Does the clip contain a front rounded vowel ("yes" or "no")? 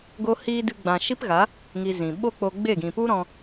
no